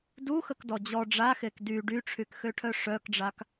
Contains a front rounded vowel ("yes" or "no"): yes